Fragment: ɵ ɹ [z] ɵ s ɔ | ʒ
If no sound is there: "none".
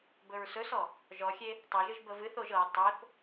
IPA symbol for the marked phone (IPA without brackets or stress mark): s